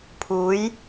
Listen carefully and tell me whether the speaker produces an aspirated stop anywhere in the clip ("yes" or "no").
yes